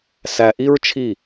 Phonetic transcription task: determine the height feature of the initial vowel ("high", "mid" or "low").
low